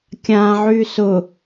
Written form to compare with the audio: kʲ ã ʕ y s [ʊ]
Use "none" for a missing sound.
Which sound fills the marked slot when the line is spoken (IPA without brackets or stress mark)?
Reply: ʊ